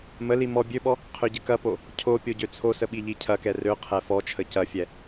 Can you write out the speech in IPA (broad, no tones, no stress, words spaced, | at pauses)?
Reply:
məli mɔ bʲøɓɔ | qʰøɟəkɐpo | cʰo pʲoɟøt͡sʰosə ɓiʎicʰɐkɛ røqʰɛ fɔt͡ʃʰə cɐfʲɛ